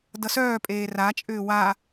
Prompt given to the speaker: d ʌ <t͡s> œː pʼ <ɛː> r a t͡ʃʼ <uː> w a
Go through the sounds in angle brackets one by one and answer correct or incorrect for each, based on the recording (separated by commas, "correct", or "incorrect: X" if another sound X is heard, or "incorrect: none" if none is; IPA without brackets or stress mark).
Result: incorrect: s, incorrect: eː, incorrect: ʏː